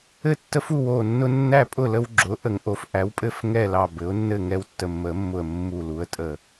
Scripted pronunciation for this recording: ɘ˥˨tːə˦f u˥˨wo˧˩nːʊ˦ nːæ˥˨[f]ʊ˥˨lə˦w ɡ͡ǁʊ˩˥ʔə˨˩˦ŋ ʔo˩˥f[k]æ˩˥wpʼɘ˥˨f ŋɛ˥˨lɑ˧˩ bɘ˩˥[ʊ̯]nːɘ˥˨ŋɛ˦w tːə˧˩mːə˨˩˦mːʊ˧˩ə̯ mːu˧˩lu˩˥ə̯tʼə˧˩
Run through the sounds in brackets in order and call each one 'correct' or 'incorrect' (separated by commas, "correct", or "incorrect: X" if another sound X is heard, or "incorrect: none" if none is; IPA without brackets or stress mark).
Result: incorrect: pʼ, incorrect: ʔ, correct